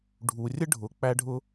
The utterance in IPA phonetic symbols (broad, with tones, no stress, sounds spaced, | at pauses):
ɖʱ u˩ rʲ ə˥ ɖʱ ʊ˩ k͡p æ˥ ɖʱ ʊ˥